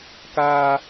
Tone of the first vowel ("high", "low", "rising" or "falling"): high